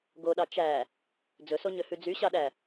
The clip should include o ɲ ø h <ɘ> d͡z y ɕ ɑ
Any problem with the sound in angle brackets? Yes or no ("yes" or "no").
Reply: yes